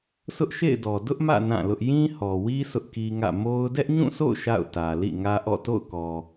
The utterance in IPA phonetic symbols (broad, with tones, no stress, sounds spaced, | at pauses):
sʰ ʊ˦ ʔ ʃ ḛ˦˨ ɪ̯ d ɔ˨ d ʊ˦ ʔ m ä̰˦˨ n ã˦˨ l ʊ˦ ʔ j ĩ˦ h ɔ˨ w i˦ sʰ ʊ˦ ʔ k i˦ ŋ ä̰˦˨ m o˦ ʊ̯ d ɛ˦ ʔ ɲ ũ˦˨ s o̰˦˨ ʊ̯ ʃ a̰˦˨ ʊ̯ t ä˨ l ḭ˦˨ ŋ ä˦ ʔ ɔ̰˦˨ t o̰˦˨ ʊ̯ k ɔ˨